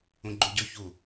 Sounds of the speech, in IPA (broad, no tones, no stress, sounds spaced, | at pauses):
ũ ɡ͡ǃ u ɟ ɵ ç u